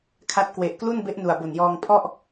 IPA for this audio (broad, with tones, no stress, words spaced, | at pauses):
kʰa˦˥t̚ kwe˨˩ʔklu˥˩n be˦˥ʔ nu˨˩a̯bo˨˩njɔː˧ŋ pʰɔ˥˩ʔ